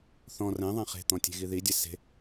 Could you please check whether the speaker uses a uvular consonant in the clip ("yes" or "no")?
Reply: yes